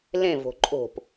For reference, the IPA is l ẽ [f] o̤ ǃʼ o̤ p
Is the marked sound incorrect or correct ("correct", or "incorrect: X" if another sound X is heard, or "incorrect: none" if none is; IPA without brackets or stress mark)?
incorrect: v